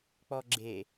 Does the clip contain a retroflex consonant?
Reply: no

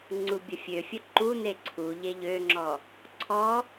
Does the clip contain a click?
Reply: yes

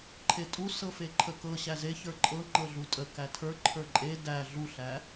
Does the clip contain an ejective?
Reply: yes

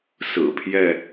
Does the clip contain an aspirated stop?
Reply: yes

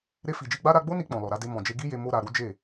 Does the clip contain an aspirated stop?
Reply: no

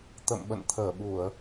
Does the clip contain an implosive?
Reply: yes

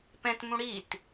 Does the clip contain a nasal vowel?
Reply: yes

